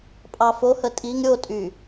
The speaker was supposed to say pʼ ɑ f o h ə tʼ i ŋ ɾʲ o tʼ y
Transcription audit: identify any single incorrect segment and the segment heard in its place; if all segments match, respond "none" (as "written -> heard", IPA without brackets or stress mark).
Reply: none